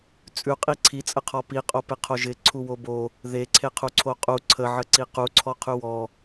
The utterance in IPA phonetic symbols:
t͡sʼ ʉ qʼ i ǀʰ i t͡sʼ ə qʰ ɔ p i qʼ o p e qʰ o ʒ ɪ ǀʰ u w o b o | ð e ǀʰ e qʰ u ǀʰ o qʼ u ǀʰ ə ʕ ə ǀ i q u ǀʰ ɔ qʰ ʉ w ɔ

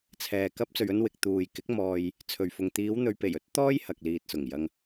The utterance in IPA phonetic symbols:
t͡sʰ ɛː˨ k ɐ˧ p̚ t͡s ɵ˨ ɥ ɵ˧ n w ɪ˨ k̚ t̪ uː˨ j k ɪ˨˥ k̚ m ɔː˨ j | t͡sʰ ɵ˨ ɥ f ʊ˨ ŋ t̪ iː˨˧ w n̪ ɵ˨ ɥ p e˨˩ j ɵ˥ t̚ t̪ ɔː˥ j h ɐ˨ k̚ l iː˨ t̚ s ʊ˨˩ ŋ j ɐ˧ ŋ

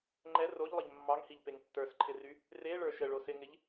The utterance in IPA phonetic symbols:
ŋ͡ǃ ɛ r o ʎ lˠ ə ʎ mː ɑ ŋ h i ʎ p e ŋ tː ə˞ s ǃʰ ɪ r y | r e ɭ ə˞ ʃ ə ɭ o s ɪ ŋ ɪ ʎ

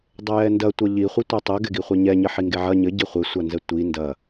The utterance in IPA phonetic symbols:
dˤ ɘ j ɛ n d ɐ tʷ ɐ ʎ i χʷ i tʷ ɛ tˤ ɘ ɡ ɛ ɡ i χʷ ɛ ɲ ɛ ɲ ɘ ħ i ŋ ɡ e ʕ ɐ ɲ ɘ ɟ i χʷ e sʷ a n z ɛ tʷ i n d ɐ

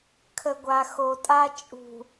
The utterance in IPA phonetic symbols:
kʰ ə˨ ɡʷ a˨ x o˨ tʼ a˦ t͡ʃʼ ṳ˨

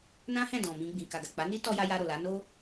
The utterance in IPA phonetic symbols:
n ã˦ h ɛ̃˦˨ d ɔ̃˨ m ĩ˧ ɡ͡b ĩ˨ k a˨ ɡ a˨ k͡p a˨˦ n i˦ t ɔ˦ j a˦ j a˧ ɾ o˨ l a˨˦ n o˦

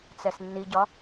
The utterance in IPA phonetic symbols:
t͡s ɛ s nː i ɟ ɒ

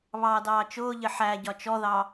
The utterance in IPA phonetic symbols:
β ɑː d ɑː t͡ʃ ʊː ʎ ɪ ħ æ ɟ ɒ t͡ʃ ɔ ð ɑ

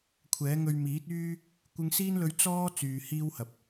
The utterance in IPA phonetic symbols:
kʷʰ ɛː˨˥ ŋ ɵ˧ ɥ m iː˨˥ t̚ yː˥ | kʷ ɪ˧ ŋ s iː˥ n l ɵ˧ ɥ t͡s ɔː˥ t͡s yː˨ h iː˥ w h ɐ˨ p̚

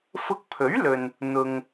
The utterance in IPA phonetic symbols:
f ʊ˧ k̚ pʰ ɵ˨˥ ɥ l ɵ˨ n | n̪ ʊ˨ ŋ

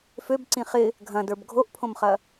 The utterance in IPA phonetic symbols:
f ø b ǀ ĩ χ ɪ | ɡʱ ɐ̃ d ə˞ b ɡʱ o ʔ pʰ õ m χ ɐ

